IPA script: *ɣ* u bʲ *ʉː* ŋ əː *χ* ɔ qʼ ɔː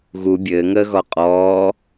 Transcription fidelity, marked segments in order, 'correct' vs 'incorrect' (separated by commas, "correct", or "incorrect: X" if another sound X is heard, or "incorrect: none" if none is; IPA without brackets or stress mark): correct, incorrect: ɘː, incorrect: ɣ